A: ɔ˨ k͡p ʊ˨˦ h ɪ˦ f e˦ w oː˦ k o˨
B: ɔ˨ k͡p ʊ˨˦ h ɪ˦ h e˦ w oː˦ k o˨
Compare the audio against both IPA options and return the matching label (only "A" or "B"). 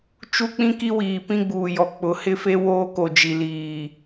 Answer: A